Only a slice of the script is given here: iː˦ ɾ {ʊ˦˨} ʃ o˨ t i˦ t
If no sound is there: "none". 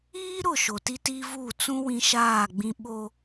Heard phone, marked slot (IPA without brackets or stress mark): ʊ˦˨